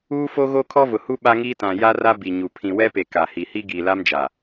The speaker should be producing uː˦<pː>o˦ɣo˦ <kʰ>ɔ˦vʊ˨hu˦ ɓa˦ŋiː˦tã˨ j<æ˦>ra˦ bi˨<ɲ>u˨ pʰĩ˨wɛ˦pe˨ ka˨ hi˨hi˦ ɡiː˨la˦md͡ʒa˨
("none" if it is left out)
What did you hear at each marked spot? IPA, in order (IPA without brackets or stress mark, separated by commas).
f, kʰ, a˦, ɲ